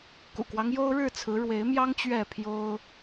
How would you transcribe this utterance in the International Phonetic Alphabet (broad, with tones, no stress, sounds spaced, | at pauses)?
k ṵ˨˩ k w ɑ˦ ŋ j o˦ ʊ̯ ɻ ɻ̩˥˨ t͡sʰ ɹ̩˨˦ ɻ w e˨˦ ɪ̯ m j ɑ˦ ŋ t͡ɕ ɥ ɛ˥˨ pʰ j o˦ ʊ̯